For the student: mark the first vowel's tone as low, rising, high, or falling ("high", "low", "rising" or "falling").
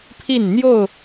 falling